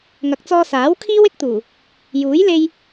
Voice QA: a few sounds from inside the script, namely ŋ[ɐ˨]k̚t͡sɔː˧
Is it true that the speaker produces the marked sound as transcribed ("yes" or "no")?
no